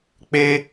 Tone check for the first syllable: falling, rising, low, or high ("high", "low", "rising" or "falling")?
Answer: high